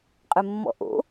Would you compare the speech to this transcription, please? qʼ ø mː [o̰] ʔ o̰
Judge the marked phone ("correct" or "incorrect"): incorrect